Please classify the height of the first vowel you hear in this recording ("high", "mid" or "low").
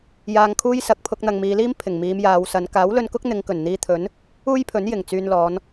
low